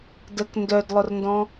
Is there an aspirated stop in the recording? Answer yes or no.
no